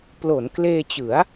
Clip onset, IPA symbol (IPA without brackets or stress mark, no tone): p